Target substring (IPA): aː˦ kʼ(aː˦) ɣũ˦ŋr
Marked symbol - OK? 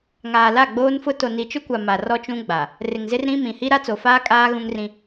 yes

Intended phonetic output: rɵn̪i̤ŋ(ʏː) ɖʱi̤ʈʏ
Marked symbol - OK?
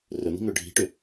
yes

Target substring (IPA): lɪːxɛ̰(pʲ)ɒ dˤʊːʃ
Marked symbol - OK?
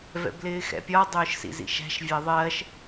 yes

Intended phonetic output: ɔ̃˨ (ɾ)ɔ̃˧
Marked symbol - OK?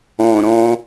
yes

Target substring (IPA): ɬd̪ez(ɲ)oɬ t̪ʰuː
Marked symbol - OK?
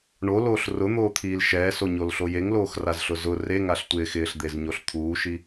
yes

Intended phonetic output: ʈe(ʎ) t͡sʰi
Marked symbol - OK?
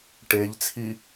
yes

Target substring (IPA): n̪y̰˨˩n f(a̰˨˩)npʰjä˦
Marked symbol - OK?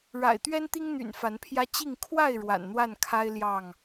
no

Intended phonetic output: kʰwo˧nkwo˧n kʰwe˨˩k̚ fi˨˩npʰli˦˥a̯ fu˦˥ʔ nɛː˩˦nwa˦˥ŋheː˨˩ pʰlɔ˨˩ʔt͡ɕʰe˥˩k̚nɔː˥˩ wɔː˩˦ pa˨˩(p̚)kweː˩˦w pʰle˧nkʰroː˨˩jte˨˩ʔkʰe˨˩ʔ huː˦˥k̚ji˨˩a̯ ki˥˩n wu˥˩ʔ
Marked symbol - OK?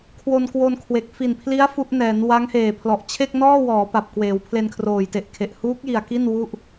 yes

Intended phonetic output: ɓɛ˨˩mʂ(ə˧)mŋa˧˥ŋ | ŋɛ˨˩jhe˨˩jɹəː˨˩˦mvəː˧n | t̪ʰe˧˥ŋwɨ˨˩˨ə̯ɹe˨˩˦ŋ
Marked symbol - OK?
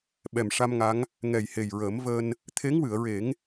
no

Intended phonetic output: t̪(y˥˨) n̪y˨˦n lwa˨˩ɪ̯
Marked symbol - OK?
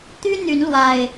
no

